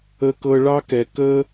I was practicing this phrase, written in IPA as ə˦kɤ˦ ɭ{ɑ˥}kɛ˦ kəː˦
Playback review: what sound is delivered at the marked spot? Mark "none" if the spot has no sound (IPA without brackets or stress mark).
ɑ˥